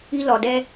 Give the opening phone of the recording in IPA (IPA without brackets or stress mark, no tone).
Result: i